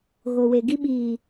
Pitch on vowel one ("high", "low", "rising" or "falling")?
low